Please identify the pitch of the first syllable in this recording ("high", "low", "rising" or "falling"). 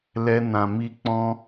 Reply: high